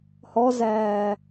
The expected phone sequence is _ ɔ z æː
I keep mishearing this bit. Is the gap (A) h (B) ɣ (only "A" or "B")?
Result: A